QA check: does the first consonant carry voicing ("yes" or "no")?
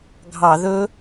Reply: yes